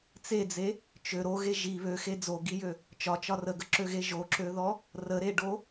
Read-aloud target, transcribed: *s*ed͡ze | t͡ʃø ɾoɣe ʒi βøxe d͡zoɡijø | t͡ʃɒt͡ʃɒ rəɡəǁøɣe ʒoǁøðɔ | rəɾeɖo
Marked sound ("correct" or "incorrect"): incorrect